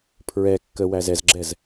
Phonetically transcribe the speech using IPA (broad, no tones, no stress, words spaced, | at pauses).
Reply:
pʰɹɛ kːə wæzɛzɡ͡ǁɛz